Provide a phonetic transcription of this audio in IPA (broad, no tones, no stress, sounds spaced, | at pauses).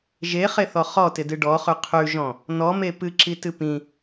ʒ e χ e θ ɔ χ ɔ t ɪ d ɨ ɖ ɔ χ ʉ qʰ ʉ ʒ ɔ̃ | n ɔ m e p ɨ ǁ i t ɨ p ĩ